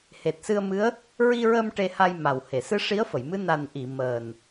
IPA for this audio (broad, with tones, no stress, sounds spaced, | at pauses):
h e˨˩ t̚ s ɨ˧ ə̯ m ɨ˧˥ ə̯ | ɹ i˧ ɹ ə˧ m ʈ e˧ h a˧ j m a˨˩ w h e˨˩˨ s ɨ˧˥ ʂ i˧˥ ə̯ f ə˨˩˨ j m ɨ˧˥ n a˨˩ n ʔ i˨˩˨ m əː˨˩ n